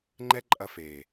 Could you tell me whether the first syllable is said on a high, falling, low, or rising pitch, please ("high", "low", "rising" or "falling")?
high